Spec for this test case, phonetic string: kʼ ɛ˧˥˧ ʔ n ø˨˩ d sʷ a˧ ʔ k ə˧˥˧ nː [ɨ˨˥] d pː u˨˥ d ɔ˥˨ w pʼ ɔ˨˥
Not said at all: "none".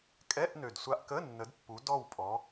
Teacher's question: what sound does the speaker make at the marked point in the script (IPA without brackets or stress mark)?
ə˨˥